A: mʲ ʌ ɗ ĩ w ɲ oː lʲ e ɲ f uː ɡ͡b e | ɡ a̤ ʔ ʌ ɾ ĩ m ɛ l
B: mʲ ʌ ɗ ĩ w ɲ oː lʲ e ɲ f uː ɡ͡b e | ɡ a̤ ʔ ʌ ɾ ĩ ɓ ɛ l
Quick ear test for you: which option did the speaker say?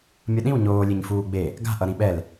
B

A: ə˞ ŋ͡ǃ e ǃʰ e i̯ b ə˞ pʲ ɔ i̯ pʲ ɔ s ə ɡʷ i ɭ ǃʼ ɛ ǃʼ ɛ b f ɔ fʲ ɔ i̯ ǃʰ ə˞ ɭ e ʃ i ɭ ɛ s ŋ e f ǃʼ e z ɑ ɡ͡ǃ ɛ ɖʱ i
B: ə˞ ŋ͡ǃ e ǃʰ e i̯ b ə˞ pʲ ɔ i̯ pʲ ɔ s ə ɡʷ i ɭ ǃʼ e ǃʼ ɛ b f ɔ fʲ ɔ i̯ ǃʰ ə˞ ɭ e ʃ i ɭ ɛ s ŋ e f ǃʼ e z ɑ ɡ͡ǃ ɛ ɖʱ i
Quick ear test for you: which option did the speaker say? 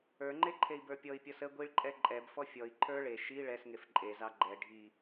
A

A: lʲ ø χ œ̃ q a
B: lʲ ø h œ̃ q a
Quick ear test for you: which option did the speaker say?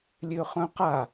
A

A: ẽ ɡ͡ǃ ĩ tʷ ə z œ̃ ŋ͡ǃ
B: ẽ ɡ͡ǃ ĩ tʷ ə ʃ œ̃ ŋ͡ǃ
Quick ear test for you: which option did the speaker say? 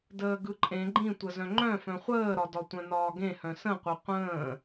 A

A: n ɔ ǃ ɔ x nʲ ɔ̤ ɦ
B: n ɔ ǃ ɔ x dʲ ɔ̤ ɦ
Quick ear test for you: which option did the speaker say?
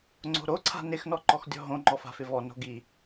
B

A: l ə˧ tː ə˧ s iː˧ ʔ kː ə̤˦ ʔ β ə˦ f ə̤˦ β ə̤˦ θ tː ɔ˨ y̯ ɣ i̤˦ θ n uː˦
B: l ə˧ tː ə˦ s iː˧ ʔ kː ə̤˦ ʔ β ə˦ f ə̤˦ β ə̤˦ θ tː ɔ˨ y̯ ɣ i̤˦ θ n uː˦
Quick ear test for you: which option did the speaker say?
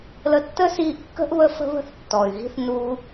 B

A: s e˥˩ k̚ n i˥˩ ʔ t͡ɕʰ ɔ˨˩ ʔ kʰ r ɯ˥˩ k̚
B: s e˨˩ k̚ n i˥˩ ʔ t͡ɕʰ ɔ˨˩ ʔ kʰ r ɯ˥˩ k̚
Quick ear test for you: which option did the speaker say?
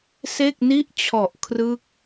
A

